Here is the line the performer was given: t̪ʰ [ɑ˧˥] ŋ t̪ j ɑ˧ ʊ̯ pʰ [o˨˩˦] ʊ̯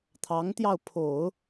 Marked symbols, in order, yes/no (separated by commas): yes, yes